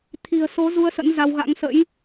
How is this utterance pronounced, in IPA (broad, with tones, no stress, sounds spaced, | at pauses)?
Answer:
t̪ʰ i̤˨˩ ə̯ s o˨˦ z u˧ ə̯ s ə̰˧˥ n z a˧ w ɣ a̰˧˥ ŋ s ə̰˧˥ j